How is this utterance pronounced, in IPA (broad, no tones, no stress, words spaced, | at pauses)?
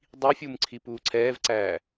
dˤifʲum ǀʰipuːǀʰɛːvǀæː